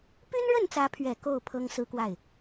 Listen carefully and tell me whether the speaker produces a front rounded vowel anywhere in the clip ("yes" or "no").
yes